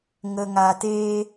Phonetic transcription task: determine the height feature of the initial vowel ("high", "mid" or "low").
mid